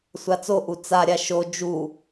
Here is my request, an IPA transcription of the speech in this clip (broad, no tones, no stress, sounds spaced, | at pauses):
sʷ a t͡s o ʔ u t͡s a ɾʲ a ʃ o d͡ʒ u